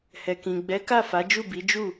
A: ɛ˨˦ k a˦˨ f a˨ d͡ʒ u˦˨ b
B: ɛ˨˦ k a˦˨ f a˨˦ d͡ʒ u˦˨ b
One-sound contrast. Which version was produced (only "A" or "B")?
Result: B